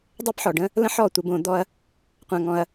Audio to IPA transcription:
dˤ ɛ˦ p ħ ɔ˨ ɖ ə̃˦ | l ə̃˦ ħ ɔ˦˨ tʷ ə˧ b õ˧ d̪ ɔ˦ ɐ̯ | qʷ ã˧ ŋ ɔ̃˧ ɐ̯

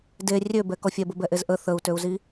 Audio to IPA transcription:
d e rʲ ø b ɛ k ɔ fʲ ɛ b ə b ɛ ʔ e z ʔ ə θ ə u̯ t ø u̯ z i

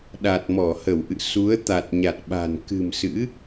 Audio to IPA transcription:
ɗ a˨˩ t̚ m ɔ˧˩ h ə˧˩ w ʔ ɨ̰˧˨ s u˨˦ ə̯ t̪ a˨˩ t̚ ɲ a˨˩ t̚ ɓ a̤˨˩ n k ɨ̤˨˩ m s ɨ̰˧˥

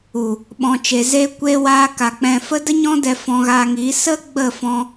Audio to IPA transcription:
u˨ | ɓ ɔ̃˨ t͡ʃ e˨ z eː˧ kʷ eː˧ w aː˧ k a˨ k͡p ɛ̃˨ f ə˧ d ə˦ ɲ ɔ̃˦ d ɛ˧ f ɔ̃˧ ɣ aː˧ ŋ iː˨˦ s ə˦ ɡ͡b ə˦˨ f ɔ̃˧

